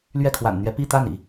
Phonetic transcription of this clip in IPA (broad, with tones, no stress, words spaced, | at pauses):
lɥɛ˥˩kʰwa̰˨˩nn̪ɥɛ˧˥ pi˥˧t̪a˥˩nḭ˨˩˦